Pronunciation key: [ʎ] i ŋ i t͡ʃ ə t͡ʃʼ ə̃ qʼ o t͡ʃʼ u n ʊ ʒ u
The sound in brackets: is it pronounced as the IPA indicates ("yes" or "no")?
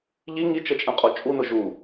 yes